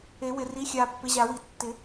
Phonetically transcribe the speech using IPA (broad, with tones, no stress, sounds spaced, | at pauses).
e˨˩˦ w ɪ˨ r i˨˦ xʲ a˨ pː ɪ˨˦ ʑ a˨˩˦ w i˨ tː ɪ˨˩˦